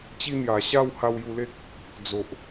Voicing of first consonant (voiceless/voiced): voiceless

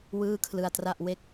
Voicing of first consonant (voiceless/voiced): voiced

